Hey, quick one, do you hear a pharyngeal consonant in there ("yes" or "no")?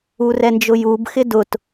no